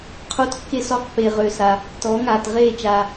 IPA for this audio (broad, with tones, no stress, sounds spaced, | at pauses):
qʰ o˦˥ t kː e˦˥ s ɔ˦˥ q p e˨ ʁ ø˨ s a˨ | t ɔː˩˥ ŋ aː˨ t ʁ eː˥˩ t͡ʃ aː˨